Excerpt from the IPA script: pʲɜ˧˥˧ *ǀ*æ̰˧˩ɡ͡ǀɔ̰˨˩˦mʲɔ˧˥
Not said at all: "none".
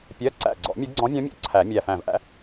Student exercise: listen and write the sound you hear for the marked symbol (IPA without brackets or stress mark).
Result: ǀ